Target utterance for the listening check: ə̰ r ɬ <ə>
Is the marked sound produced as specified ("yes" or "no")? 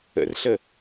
yes